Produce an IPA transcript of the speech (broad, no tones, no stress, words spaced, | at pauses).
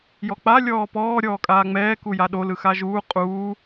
jɔk͡pa lʲɔːpɔː ɾʲɔːkʼaːŋ͡mɛː kujaɗo lɯxaʒuː qʼuː